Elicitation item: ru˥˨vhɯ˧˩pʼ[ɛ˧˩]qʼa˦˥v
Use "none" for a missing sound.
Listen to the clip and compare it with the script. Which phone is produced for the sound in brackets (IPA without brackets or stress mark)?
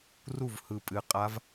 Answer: ɨ˧˩